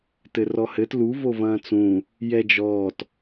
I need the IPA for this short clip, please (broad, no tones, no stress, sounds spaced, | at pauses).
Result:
t ɘ r ɔ h ɘ t l u v o v ɐ̃ː t͡s ũ | j ɛ d͡ʒ ɔː t